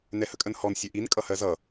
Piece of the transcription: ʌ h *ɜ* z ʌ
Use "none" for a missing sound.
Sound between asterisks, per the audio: ɜ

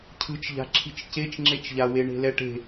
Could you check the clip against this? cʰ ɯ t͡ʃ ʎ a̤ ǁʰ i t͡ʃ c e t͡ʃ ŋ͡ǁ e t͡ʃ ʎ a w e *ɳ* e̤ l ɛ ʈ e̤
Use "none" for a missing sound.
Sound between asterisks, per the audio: ɳ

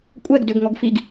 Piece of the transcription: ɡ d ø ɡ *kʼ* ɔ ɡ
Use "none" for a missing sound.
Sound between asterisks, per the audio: ŋ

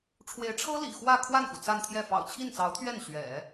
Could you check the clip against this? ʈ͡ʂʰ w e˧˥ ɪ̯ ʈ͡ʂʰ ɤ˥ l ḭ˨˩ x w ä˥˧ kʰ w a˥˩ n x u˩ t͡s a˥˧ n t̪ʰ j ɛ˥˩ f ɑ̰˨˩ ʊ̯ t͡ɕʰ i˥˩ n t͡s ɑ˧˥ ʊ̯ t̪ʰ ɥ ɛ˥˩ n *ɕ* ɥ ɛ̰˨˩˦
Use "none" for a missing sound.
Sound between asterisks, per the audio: ɕ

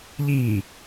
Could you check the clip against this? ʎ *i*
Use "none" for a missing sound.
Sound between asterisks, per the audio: iː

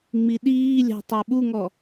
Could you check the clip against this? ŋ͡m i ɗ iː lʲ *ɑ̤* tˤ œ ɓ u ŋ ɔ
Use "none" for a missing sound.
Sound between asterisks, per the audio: ɑ̤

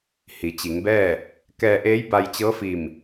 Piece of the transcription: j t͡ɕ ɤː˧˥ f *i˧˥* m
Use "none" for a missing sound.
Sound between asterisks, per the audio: i˧˩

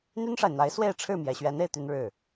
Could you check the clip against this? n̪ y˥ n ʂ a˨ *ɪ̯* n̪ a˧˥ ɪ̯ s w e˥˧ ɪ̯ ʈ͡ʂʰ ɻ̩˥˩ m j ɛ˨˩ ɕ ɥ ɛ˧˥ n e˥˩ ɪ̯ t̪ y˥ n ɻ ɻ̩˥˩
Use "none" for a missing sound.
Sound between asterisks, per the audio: ɪ̯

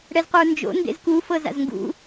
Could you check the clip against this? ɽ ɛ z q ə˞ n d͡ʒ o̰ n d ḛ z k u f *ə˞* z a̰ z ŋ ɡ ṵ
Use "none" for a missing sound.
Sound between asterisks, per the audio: ɤ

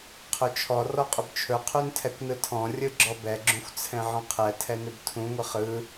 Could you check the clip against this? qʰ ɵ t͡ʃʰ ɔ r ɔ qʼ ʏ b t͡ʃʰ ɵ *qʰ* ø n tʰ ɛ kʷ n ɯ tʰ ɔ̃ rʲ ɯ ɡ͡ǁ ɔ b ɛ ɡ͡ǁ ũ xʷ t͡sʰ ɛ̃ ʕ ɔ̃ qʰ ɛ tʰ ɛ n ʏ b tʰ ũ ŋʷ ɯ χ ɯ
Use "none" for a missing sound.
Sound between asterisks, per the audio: qʰ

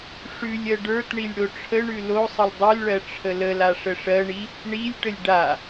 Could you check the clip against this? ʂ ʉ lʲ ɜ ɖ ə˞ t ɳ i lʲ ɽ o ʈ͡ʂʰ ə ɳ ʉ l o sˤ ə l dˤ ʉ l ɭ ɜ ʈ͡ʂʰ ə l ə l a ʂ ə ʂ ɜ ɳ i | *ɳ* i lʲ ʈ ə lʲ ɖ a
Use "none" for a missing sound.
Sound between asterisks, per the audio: ɳ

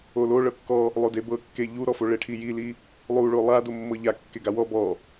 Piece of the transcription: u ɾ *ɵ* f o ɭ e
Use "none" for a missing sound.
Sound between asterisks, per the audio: ɔ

